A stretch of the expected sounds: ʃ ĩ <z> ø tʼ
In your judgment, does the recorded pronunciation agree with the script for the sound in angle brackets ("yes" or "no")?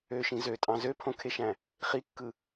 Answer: yes